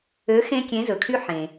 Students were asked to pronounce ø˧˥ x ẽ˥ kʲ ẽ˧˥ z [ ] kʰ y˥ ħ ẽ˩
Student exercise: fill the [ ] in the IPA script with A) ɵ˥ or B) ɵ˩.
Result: B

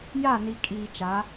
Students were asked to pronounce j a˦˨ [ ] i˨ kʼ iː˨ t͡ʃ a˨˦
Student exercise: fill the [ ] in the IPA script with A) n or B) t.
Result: A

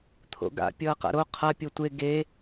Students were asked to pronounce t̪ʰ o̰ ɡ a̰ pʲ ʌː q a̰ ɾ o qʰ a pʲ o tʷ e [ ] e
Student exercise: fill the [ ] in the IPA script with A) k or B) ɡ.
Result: B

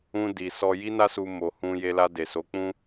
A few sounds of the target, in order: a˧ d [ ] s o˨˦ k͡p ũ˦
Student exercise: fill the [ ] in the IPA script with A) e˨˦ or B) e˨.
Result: B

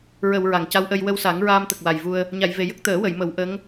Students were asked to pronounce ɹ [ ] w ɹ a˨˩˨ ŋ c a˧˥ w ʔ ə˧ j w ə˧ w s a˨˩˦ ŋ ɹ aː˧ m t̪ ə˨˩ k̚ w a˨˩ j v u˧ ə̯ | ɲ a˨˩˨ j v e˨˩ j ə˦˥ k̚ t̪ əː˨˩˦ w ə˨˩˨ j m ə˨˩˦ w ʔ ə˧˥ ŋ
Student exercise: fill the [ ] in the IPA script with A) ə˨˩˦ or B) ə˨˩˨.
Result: B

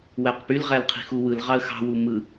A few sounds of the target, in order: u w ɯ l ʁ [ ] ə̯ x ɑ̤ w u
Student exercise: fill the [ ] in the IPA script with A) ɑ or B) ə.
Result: A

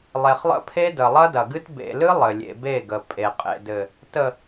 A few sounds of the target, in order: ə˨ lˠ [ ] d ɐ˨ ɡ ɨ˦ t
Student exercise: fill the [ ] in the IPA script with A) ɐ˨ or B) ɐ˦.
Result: B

